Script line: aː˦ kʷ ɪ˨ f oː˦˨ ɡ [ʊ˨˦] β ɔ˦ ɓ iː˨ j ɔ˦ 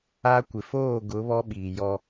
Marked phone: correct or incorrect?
correct